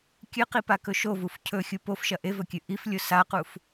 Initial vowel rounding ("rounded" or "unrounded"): unrounded